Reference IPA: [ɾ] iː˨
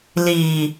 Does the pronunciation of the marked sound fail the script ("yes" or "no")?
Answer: yes